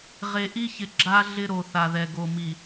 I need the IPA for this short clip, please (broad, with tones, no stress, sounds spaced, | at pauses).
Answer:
ʁ e˨ ʔ i˦ ç ɪ˨ ɡ͡ǁ a˦ ɮ ɪ˦ ɾ o˨ θ a˨ ð ɛ˨ ɡ o˨ m i˨